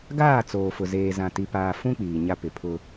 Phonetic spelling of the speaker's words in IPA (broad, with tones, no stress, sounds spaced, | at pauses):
ɡ aː˦˨ t͡s oː˨ f ʊ˨ z eː˨ z ã˨ t i˨ p aː˨ f ũ˦ k͡p iː˨ ɲ a˦ p ɪ˨ pʰ ʊ˦